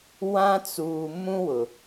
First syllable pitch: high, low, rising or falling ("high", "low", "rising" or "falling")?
high